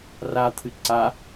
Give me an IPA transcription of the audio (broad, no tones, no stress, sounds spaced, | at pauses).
r a t̪ʰ ɨ ǀ a